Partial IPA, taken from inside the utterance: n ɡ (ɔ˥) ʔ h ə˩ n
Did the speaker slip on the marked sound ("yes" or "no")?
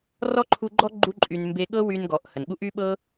yes